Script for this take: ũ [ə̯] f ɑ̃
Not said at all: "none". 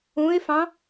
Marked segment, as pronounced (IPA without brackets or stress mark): ɪ̯